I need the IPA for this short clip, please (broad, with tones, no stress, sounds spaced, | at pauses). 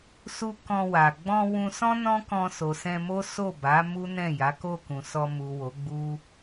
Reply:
s u˧ k ɔ̃˧ w a˨ ɡ͡b ɔ̃˧ w ũ˧ s ɔ̃˦ n ɔ̃˦ k ɔ̃˧ s o˨ s ɛ̃˧ m o˦ s o˦˨ b a˨˦ m u˦ n ɛ̃˦˨ j a˨˦ k o˦˨ k ũ˨ s ɔ˧ m u˨ w o˨˦ ɡ͡b u˦